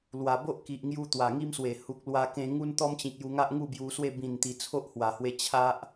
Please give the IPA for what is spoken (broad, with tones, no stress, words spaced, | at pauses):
lwa˨˩ bo˦ʔki˨ʔŋju˧ t̪wa˨˩ŋi˦mswe˨˩ hu˨k̚lwa˧kẽ˧ ŋu˦nt̪ɔ˦mt͡ɕĩ˨k̚ju˧ ŋa˦ʔŋu˥˧bju˧swe˥˧ bĩ˨˩nt̪i˨˩ t͡sʰo˦ʔhwa˨˩hwe˧ t͡ɕʰa˦ʔ